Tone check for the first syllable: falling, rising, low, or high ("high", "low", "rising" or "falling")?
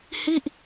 falling